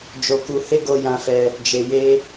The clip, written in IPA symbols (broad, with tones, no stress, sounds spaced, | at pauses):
d͡ʒ o˧ k u˧ h e˦ ɡ o˧ j ã˧ f ɛ˧ | d͡ʒ e˧ j e˦